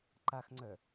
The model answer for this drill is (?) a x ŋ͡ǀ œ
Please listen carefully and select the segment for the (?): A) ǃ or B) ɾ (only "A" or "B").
A